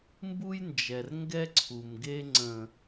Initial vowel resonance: oral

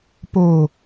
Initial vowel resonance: oral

